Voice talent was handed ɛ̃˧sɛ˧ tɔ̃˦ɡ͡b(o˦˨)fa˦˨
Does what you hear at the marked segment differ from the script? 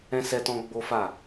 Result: yes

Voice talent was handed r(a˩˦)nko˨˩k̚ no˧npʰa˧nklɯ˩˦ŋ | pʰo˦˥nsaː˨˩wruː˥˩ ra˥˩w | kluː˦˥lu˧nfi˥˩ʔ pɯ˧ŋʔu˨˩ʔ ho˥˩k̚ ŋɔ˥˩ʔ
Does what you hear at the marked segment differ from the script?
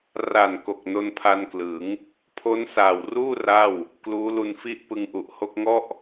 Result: yes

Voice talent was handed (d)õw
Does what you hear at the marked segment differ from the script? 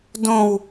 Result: no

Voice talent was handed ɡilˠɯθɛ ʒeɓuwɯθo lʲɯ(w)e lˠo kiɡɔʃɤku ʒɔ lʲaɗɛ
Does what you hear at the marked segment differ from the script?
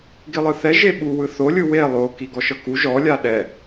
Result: no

